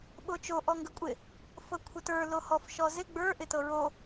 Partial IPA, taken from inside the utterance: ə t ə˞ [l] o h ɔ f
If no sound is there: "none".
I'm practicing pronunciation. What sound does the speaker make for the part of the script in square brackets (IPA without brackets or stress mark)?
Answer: l